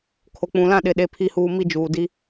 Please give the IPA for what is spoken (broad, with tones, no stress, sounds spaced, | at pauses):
kʰ o˨ k͡p ũ˨ l ã˦˨ ɗ ɪ˨ ɗ e˨ pʰ i˨ h uː˨ m i˦ d͡ʒ uː˨ d i˦